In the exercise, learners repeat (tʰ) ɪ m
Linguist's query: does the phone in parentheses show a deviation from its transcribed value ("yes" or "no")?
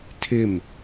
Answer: no